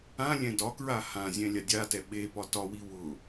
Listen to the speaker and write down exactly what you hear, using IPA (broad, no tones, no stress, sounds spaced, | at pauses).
ã lʲ ɛ̃ d ɒ k ɹ a h ã zʲ ɛ̃ lʲ a dʲ a t ɛ ɓ e p ɒ t ɒ w i w ʊ